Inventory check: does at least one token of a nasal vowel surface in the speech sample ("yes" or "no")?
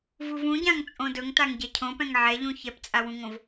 yes